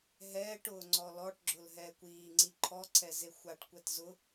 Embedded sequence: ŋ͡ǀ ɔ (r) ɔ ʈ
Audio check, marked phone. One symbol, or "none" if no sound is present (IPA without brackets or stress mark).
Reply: l